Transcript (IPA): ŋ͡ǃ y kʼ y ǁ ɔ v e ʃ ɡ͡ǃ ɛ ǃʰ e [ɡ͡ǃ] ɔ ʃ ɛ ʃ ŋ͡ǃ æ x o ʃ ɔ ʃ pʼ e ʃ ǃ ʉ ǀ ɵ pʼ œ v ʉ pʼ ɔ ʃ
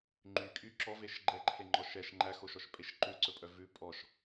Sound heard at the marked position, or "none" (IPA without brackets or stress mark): ŋ͡ǃ